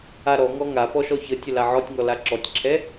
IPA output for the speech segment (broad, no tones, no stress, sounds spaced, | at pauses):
a ɾ ɔ ŋ ɔ ŋ a p ɔ ʃ ɔ ç ə tʲ ə l a ʕ ɔ tʲ ŋ ɔ l a ǁ ɔ tʲ ǁʰ ɛ